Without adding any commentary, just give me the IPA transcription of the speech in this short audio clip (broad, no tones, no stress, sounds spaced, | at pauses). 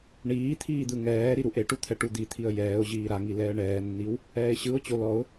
ɳ iː t̪ʰ iː d̪ ɯ ŋ ɛː ɾ i ɾ u ʔ e ʈ u t̪ʰ ɛ ʈ u d̪ i t̪ʰ i ə̯ j ɛː ʊ̯ ʑ iː ɾ a ŋ i l ɛː ɳ ɛː nː i w | ɛː ɪ̯ ɕ ɯ ʊ̯ t͡ɕ o l ɔ ʊ̯